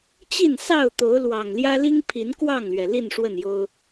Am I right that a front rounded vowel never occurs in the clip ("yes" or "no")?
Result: yes